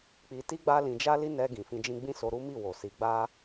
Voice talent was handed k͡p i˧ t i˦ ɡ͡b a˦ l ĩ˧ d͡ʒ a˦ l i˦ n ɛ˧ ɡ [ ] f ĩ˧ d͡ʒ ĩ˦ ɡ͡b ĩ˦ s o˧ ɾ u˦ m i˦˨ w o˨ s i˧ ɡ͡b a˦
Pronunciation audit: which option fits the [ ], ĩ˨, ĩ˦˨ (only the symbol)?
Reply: ĩ˨